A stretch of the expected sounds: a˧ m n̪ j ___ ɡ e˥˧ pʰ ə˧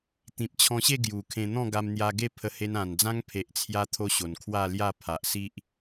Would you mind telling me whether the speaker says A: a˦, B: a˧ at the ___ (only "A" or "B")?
B